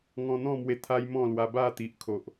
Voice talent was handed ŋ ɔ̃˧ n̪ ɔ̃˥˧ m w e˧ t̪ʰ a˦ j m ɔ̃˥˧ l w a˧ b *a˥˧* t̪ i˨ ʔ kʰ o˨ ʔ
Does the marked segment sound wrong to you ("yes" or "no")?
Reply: no